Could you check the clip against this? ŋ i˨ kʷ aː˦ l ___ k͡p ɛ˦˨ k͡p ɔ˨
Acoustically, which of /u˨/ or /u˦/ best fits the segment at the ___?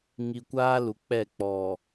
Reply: u˨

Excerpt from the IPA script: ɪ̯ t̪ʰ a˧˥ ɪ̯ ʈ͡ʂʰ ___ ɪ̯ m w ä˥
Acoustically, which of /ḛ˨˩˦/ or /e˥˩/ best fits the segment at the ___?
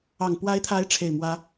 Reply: e˥˩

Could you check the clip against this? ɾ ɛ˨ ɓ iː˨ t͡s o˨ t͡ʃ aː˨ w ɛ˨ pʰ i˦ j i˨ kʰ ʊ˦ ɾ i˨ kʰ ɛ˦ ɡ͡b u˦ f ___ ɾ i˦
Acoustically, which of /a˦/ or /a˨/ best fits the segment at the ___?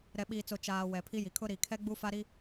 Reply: a˦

